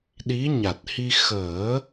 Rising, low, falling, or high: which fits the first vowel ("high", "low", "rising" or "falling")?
rising